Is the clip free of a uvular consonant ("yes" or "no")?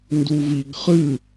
no